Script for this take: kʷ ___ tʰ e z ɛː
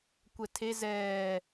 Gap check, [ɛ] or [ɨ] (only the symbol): ɛ